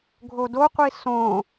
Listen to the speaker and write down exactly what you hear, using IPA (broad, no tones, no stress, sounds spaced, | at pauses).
ɡʱ o d o qʷ i s õ